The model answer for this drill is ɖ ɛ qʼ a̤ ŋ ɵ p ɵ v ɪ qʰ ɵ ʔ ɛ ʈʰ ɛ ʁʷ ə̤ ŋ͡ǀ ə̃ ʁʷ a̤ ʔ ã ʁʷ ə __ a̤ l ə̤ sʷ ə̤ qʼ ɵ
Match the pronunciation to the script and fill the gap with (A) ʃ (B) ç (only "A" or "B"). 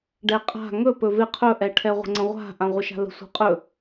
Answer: A